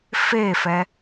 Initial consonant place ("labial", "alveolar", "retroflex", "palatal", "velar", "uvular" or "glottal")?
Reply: labial